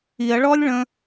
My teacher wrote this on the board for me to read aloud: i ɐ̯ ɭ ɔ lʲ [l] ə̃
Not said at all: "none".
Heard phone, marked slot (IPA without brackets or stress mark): ɭ